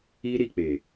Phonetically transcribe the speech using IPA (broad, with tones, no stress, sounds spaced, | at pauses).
i˦ ɾ i˨ k͡p e˨